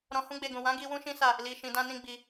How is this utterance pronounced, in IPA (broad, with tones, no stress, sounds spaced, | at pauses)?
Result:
ɾ ɔ̃˧ h ũ˦ ɡ͡b e˧ ɡ ũ˨ w ã˨˦ ɡ i˧ w ũ˦ ʃ ĩ˦ s a˦˨ | l i˨ ʃ ĩ˨ d ã˧ n ĩ˧ ɡ͡b i˧